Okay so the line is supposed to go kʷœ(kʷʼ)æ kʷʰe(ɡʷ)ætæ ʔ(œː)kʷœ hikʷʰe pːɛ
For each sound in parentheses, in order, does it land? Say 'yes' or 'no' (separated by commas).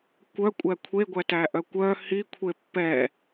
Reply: yes, yes, no